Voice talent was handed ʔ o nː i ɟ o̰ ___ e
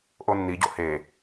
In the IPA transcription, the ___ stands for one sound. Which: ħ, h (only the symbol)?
h